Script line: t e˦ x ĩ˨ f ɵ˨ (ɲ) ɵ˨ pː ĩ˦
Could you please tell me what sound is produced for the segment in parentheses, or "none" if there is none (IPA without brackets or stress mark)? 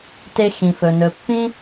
n